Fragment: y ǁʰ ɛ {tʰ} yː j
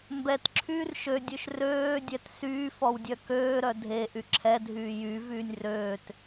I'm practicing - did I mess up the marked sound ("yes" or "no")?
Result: yes